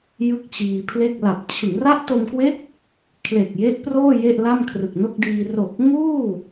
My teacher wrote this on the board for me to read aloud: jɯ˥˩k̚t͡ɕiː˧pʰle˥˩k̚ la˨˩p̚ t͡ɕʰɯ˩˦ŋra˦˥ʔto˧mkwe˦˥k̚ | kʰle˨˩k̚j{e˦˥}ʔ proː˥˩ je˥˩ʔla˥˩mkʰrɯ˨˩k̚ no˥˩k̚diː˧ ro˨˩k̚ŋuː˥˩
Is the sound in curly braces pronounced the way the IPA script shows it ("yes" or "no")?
yes